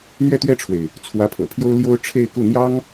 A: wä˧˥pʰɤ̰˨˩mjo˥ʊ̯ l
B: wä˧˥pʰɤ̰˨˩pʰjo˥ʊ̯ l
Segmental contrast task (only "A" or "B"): B